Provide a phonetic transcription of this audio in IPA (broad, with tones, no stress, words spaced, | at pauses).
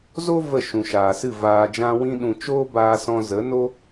zo˦ və˦˨ ʃũ˨ʃaː˨sɨ˦˨ vaː˧d͡ʒã˦ wĩ˧ɗũ˨ t͡ʃoː˦baː˧ sɔ̃˧zə˨˦no˦